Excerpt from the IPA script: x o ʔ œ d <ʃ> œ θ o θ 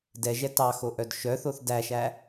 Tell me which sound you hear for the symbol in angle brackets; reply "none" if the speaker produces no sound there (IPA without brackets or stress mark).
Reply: ʃ